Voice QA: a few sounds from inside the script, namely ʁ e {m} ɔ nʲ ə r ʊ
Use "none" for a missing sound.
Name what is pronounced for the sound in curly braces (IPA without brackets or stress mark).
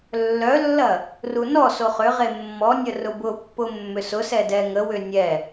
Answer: mː